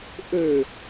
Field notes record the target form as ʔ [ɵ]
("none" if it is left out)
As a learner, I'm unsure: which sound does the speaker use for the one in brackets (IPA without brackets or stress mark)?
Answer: ø